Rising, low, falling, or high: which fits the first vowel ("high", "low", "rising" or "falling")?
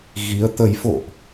rising